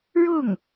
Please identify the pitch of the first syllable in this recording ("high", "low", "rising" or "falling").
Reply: falling